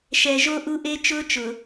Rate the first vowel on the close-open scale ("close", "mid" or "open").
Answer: mid